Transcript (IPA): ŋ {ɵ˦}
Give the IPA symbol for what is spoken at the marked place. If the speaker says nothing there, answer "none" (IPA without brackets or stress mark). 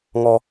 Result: ɔ˦